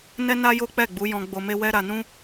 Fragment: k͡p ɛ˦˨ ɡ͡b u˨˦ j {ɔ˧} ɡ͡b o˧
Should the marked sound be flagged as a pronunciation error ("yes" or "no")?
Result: yes